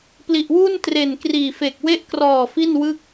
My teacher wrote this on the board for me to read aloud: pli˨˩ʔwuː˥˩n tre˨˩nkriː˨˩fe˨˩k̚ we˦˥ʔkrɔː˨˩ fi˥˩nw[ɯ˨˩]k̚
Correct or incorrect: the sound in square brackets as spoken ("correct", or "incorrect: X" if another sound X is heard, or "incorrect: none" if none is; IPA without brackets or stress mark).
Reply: incorrect: ɯ˥˩